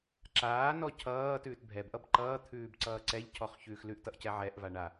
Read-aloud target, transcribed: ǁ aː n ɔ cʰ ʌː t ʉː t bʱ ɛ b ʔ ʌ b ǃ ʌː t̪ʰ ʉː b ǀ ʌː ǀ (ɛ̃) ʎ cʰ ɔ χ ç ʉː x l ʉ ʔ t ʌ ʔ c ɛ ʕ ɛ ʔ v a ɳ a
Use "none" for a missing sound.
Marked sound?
ɛ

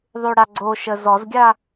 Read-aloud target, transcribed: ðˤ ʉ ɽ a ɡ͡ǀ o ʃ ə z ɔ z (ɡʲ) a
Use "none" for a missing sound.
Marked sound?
ɡʲ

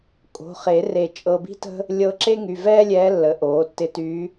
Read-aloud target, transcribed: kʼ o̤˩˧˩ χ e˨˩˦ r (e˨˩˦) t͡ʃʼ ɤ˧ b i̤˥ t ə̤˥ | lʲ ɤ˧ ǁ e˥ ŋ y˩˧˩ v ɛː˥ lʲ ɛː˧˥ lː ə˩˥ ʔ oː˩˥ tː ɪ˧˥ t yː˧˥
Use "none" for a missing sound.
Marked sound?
e˨˩˦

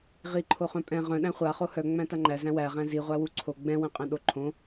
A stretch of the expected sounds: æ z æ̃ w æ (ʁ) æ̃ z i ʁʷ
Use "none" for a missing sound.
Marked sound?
ʁ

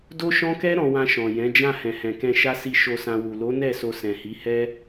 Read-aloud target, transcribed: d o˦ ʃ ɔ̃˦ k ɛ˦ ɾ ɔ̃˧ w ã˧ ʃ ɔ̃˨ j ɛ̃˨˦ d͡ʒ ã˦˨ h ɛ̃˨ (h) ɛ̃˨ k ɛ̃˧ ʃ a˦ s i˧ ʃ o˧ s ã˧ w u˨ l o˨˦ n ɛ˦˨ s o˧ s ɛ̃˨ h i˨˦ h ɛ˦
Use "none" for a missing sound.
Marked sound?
h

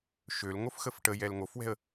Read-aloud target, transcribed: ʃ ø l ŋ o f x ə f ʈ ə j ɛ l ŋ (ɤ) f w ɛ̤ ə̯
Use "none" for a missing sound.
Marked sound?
o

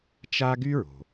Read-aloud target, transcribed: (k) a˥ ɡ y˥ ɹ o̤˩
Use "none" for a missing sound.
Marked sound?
t͡ʃ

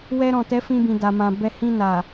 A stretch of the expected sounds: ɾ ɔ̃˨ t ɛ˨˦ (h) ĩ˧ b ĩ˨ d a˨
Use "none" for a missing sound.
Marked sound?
f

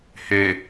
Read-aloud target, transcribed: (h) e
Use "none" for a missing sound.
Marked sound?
h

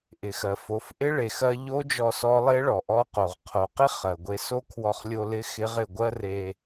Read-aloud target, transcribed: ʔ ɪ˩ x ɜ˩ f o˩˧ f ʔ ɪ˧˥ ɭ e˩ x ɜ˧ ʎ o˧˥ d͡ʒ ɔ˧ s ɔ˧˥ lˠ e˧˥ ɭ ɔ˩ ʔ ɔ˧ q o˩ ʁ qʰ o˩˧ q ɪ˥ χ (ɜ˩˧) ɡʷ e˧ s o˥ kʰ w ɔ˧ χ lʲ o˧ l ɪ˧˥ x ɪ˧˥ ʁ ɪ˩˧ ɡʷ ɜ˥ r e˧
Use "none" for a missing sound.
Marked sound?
ɜ˩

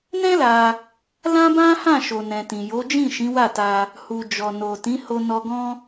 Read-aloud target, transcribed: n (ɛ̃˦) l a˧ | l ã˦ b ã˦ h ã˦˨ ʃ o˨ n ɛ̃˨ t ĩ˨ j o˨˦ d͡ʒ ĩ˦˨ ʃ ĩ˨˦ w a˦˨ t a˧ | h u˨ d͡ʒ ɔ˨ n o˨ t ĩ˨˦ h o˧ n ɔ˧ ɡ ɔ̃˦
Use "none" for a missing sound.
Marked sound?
ɛ̃˦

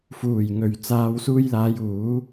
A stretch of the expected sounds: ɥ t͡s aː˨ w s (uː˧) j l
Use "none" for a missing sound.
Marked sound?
uː˧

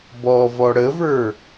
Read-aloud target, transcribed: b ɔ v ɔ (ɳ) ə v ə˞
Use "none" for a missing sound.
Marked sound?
ɽ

